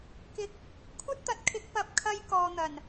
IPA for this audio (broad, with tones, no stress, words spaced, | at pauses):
kɪ˨k̚ | kʷʰɐ˥t̚t̪ɐ˨˥t̚kʰɪ˨˥k̚ pɐ˨p̚kʰɐ˧j kɔː˧n̪ɐ˨˩n